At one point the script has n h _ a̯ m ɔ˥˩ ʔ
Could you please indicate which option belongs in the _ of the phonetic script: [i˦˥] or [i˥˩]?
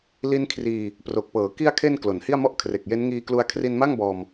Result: i˥˩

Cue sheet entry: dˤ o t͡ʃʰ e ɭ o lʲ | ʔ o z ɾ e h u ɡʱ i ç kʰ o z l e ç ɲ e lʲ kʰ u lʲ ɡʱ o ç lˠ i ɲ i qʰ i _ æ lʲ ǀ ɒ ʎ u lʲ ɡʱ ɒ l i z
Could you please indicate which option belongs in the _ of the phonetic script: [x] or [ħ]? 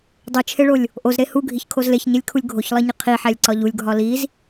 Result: ħ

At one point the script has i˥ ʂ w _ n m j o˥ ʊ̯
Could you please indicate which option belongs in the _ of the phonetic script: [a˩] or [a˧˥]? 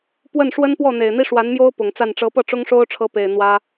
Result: a˧˥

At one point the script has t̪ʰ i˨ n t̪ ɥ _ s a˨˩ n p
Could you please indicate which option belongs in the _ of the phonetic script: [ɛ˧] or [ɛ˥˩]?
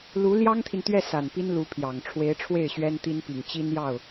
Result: ɛ˥˩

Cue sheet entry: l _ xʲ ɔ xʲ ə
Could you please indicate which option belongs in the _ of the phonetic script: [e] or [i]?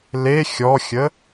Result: e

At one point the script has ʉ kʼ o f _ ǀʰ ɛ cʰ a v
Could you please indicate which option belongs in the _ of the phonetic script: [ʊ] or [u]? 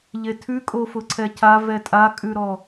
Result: ʊ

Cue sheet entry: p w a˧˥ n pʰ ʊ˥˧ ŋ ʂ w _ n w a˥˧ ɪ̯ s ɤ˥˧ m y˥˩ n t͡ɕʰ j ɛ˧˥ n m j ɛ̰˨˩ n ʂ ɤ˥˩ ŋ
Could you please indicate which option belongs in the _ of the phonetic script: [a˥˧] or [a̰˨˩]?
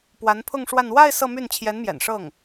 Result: a˥˧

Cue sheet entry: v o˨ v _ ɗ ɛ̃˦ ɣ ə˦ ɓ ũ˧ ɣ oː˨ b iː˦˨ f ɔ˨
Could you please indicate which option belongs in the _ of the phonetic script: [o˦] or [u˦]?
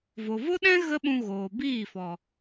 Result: o˦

